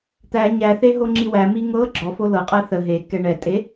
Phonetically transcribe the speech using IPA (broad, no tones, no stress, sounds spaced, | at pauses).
t̪ æ ɲ æ θ e ɦ o ŋ͡ǁ i w æ m i ŋ ɤ ɡ͡ǁ ɔ f o l ɤ qʼ ɛ θ ə ɦ e k ɛ ɳ ɛ tʼ e